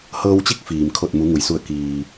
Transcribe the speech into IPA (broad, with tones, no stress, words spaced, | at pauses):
hɤː˧wt͡ɕi˧˥k̚ fiː˩mkʰo˧˩t̚ mu˩˧ŋu˩jsu˧˩ə̯ kiː˩